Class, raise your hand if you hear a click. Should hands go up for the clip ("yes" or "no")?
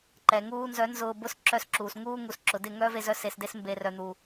yes